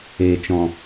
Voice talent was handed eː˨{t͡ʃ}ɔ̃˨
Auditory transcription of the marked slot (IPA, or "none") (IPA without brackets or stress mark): t͡ʃ